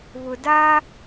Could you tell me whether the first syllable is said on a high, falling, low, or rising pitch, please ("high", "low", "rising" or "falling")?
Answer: low